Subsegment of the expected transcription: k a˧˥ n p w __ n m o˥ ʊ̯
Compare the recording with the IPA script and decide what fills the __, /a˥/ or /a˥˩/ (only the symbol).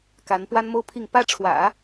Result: a˥